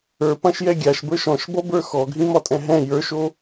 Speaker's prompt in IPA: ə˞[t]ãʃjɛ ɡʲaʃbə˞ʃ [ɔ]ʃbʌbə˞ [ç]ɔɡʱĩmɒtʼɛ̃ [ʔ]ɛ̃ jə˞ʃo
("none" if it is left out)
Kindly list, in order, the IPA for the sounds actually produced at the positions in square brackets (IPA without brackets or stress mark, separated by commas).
p, ɔ̃, x, ɦ